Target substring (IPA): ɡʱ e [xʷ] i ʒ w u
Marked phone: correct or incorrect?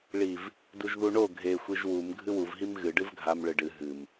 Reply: correct